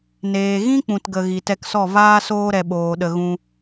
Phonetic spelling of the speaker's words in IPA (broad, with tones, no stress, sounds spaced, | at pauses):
n eː˨ ɣ ĩ˦ k͡p ũ˨ t ɡ ə˨ ɣ i˨ t ɛ˧ k s ɔ˦˨ v aː˦ s oː˦ ɾ ɛ˨ ɓ oː˨ ɗ ə˧ ɣ ũ˦